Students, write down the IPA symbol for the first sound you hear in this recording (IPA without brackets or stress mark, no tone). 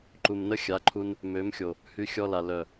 ǃ